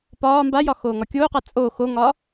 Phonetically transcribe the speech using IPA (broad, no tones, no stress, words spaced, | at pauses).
pɒː mbajɒ xoːŋɒkʲoːqa t͡sʼo xoŋɒ